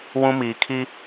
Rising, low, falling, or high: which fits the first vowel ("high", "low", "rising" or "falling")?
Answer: high